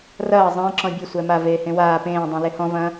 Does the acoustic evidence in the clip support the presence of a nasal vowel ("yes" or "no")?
yes